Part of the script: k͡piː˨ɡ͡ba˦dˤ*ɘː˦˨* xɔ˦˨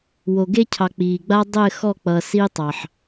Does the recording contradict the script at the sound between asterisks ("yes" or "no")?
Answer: no